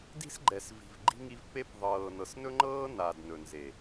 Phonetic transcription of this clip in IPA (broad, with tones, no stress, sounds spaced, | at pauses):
d i̤˦ s ɡ͡ǃ ɛ˨ s v i̤˨ v ɡ͡ǃ i̤˧ ŋ i˧ v p e˧ p ðˤ ɤː˨ n ɤ˨ s n ɵ˦ ŋ͡ǃ ɤː˦ n a˨ d n ɵ˨ n z e˨